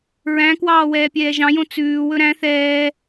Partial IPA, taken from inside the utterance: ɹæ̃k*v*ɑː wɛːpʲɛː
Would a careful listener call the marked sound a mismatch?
yes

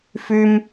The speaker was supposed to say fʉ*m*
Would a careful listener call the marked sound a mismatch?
no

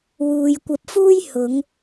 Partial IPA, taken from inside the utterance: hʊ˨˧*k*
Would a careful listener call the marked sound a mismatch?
yes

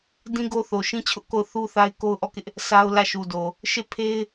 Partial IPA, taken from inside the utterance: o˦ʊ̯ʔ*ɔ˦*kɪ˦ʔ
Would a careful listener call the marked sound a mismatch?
yes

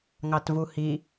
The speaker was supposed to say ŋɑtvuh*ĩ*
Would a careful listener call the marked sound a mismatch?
yes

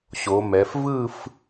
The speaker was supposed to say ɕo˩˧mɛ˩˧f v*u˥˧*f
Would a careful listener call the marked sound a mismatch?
yes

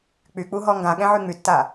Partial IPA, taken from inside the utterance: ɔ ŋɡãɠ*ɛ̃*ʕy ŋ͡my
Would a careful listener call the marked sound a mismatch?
no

